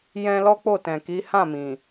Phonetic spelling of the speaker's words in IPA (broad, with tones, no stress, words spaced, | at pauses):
jɛ̃˦ lɔ˦k͡po˦˨tɛ̃˨ki˨˦ hã˦˨mĩ˨